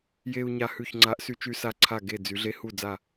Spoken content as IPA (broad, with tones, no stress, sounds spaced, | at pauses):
j e˧ u̯ ɲ a˧ h ʉ˧˩ ç ŋ͡ǀ a˨˥ ʔ s y˧ t͡ʃ y˧ s a˧˩ ǀʰ a˧˩ ɡ e˧˩ d͡z y˩˧ ɮ e˨˥ h u˧˩ d͡z a˧˩